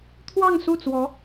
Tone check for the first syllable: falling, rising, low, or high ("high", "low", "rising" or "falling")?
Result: falling